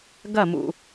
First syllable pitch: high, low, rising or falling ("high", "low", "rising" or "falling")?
falling